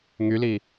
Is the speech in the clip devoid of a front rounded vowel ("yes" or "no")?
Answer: no